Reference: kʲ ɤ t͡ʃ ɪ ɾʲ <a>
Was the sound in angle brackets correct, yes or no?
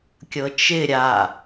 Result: yes